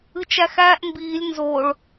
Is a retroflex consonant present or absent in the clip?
present